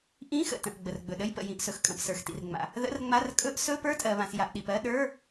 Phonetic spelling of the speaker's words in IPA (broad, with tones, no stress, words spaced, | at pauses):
ʔĩ˧˥˧xə̰˩tə̃˩ʔ ɡ͡bə˩rɡ͡bɵ˩ɗə˧˥˧jpə̰˩ jĩ˩ʔsɵ˩xkʼə̃˩p sə˞˩xtḭ˩rŋ͡ma̰˩ | ðə̰˧˥˧rŋ͡ma˧˥˧r kʼɵ˧˥˧ʔ sɵ˧˥˧ pə˞˧˥˧tʼɜ˩βã˩s ja˩ʔɗi˩p ɜ˧˥˧ɗə˞˧˥˧